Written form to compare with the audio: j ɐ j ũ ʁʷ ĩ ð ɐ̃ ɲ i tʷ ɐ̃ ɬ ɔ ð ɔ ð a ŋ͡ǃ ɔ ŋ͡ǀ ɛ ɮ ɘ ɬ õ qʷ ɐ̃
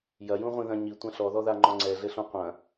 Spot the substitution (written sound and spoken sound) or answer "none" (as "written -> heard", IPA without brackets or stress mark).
none